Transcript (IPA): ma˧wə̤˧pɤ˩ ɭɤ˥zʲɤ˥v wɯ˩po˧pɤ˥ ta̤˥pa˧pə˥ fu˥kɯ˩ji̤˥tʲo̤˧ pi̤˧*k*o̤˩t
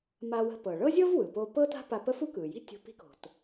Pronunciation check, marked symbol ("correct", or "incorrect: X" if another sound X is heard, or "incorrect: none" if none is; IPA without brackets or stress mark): correct